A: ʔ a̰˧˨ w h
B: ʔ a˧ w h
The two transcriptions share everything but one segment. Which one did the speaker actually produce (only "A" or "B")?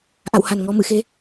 A